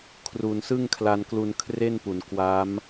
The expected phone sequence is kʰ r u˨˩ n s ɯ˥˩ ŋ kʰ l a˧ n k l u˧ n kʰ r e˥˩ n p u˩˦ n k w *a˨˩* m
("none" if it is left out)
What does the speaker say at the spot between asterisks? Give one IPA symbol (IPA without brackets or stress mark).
a˦˥